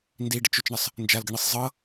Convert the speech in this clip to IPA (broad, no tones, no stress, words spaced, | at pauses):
ndiɖət͡ʃ ʊt͡ʃɳəsˤ | nd͡ʒalɡəɳisˤ zˤɤ